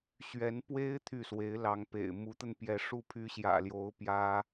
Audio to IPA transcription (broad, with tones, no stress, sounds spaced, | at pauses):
ɕ ɥ ɛ˧˥ n p w e˥ ɪ̯ t̪ʰ y˥˩ s w e˧˥ ɪ̯ l ɑ˧˥ ŋ p ḛ˨˩ ɪ̯ m u˧˥ t̪ ə˧ n p j ɛ˧˥ ʂ u˥˩ pʰ y˥ ɕ j ä̰˨˩ l j o˧˥ ʊ̯ p j ä˥